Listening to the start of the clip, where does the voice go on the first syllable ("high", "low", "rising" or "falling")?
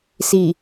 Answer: low